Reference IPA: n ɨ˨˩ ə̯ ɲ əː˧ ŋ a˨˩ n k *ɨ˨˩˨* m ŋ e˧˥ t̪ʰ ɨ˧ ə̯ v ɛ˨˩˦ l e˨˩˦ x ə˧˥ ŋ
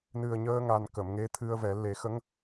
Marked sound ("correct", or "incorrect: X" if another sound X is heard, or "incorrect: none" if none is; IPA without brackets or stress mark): incorrect: ə˨˩˨